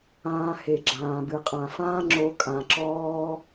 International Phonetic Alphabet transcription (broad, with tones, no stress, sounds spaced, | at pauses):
ãː˧ h e˨ ɡ͡ǁ ãː˨ b ɨ˨ qʼ ã˨ f ãː˦ ŋ͡ǁ o˧ kʼ ã˨ ǁ ɔː˦